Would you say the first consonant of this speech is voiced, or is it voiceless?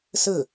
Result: voiceless